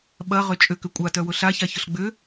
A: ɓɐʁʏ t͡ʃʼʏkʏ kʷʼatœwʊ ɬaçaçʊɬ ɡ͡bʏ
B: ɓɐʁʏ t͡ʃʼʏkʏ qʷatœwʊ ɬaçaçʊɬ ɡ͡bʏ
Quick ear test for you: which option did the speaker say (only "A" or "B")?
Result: A